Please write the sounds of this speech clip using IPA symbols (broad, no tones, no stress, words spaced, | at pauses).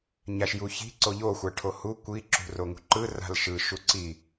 ɲaʃjuçi̤ ǀoʎo xʷaʈʰohu kʷi ǁṳroŋṳǃɯ ra̤lʃɯ ʃuǀi